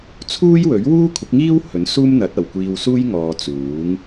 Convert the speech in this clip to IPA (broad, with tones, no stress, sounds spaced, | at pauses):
t͡sʰ uː˥ j w ɵ˨˥ ɥ w uː˥ kʷʰ ɪ˨˥ k̚ ŋ iː˥ w h ɵ˨˥ n s uː˥ m n̪ ɐ˨˥ t̚ ɐ˨˩ w kʷ iː˧ w s uː˥ j ŋ ɔː˨ t͡s uː˨˥ ŋ